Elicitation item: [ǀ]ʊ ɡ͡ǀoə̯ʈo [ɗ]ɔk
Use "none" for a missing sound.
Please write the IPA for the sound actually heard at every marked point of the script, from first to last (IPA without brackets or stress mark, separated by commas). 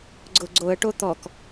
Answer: ɡ͡ǀ, t̪